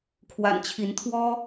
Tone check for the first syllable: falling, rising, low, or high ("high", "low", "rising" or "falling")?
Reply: low